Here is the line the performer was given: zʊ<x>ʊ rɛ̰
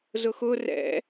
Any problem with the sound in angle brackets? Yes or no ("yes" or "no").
no